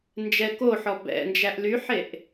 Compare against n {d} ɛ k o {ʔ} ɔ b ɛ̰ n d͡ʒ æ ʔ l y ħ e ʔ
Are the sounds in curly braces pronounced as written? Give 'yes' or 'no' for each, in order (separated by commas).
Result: no, no